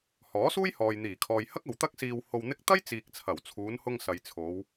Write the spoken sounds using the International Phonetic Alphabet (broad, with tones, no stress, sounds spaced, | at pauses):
h ɔː˨˥ s uː˥ j h ɔː˨ j n̪ iː˨˩ kʰ ɔː˨ j h ɐ˥ k̚ ɐ˨ w t̪ ɐ˥ k̚ s iː˧ w h o˧ w n̪ ɪ˥ k̚ t̪ ɐ˥ j t͡s iː˨ k̚ t͡sʰ ɐ˨˩ w t͡sʰ uː˨˧ n h ʊ˧ ŋ s ɐ˨ j t͡sʰ o˨˧ w